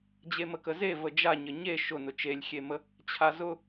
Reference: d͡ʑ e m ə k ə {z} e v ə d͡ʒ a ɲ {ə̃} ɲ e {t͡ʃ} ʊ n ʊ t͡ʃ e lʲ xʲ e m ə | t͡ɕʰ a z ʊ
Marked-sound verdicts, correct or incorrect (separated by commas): correct, incorrect, incorrect